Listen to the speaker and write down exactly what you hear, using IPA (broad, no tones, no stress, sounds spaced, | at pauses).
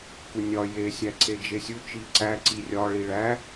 k u nʲ ɒ j e sʲ æ ǀ e d͡ʒ e sʲ u t͡ʃ i ǀ æ ǀ i rʲ ɒ ɭ i ɭ æ